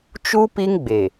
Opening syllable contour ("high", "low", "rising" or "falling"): high